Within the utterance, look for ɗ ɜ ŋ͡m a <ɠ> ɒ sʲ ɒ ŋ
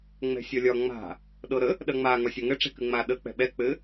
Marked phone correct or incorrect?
incorrect